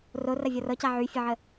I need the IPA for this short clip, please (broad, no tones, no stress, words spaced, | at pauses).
rorɐ vʲɔrɤca ʕyfʲəʕə